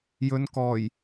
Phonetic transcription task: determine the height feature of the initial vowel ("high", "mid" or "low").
mid